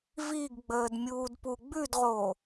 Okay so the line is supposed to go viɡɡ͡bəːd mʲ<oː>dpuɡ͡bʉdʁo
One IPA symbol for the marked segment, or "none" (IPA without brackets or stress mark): uː